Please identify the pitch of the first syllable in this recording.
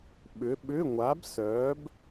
rising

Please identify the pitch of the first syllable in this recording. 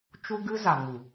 high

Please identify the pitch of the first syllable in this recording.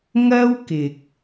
high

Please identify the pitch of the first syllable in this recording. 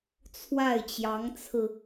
falling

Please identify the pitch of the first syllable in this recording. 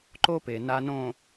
high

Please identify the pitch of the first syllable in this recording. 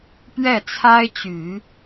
falling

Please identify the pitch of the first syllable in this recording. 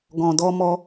low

